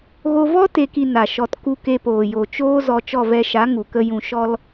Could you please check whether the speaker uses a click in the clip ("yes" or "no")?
no